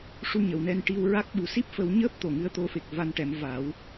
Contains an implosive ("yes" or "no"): yes